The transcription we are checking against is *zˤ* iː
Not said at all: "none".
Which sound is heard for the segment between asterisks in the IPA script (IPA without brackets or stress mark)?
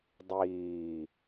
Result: dˤ